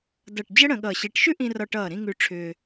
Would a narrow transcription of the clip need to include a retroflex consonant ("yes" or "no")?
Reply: yes